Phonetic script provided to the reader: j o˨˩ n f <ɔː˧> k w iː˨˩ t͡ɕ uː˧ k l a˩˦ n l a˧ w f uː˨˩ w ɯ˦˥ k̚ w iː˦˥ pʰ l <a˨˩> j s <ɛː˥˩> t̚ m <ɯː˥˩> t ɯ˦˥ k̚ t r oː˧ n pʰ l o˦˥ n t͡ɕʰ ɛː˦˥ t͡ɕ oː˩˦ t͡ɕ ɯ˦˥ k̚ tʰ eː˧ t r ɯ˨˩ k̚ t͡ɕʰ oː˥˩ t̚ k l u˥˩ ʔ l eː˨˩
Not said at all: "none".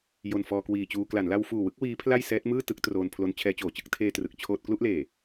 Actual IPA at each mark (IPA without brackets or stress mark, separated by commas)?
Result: ɔː˧, a˥˩, ɛː˦˥, ɯː˥˩